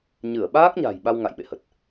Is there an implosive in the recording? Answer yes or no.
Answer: yes